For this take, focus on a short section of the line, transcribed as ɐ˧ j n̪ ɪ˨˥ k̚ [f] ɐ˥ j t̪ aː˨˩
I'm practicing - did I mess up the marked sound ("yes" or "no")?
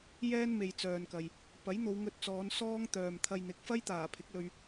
no